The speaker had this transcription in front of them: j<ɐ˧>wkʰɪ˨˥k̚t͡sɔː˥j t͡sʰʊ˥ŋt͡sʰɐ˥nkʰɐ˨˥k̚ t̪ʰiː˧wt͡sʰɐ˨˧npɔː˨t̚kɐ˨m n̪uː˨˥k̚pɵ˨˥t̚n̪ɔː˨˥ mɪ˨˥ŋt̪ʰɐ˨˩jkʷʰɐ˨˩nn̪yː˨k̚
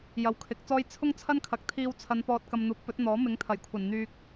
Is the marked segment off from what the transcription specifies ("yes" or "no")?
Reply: yes